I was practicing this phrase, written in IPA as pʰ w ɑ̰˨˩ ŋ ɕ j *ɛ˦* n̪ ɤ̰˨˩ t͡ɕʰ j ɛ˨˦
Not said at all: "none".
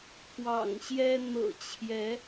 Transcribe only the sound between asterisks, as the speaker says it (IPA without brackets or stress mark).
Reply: ɛ˦